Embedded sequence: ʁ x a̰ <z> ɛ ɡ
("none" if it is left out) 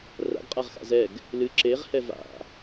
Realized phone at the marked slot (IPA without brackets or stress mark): z